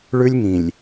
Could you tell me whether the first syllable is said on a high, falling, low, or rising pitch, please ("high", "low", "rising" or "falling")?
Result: high